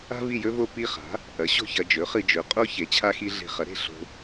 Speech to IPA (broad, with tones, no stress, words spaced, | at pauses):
a̤˥ vi˥˧jɵ˥vo˥˧ pi˥˧χa̤˩˥ | ʔɐ˩˥ɕo̤˥˧çɐ˧ d͡ʒɵ˩˥χɨ˧ d͡ʒɵ˩˥qʼo˥ çe˩˥t͡ɕʰa˥xi˥ ɮe̤˧χɐ˩˥ɾe̤˥˧ ɬo̤˧